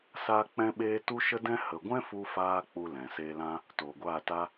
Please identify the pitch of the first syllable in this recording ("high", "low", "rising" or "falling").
high